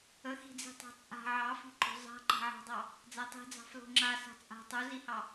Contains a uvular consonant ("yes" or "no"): no